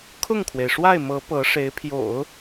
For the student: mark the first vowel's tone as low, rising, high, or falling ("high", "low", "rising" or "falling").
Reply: falling